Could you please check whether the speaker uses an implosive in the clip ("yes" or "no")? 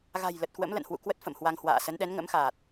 yes